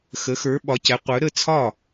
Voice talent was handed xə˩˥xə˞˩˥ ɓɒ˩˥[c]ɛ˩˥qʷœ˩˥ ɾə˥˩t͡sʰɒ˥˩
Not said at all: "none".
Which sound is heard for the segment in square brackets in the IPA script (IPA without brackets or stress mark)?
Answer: c